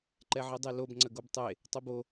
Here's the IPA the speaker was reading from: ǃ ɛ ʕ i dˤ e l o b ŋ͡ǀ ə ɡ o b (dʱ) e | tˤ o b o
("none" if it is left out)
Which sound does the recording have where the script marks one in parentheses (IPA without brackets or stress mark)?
tˤ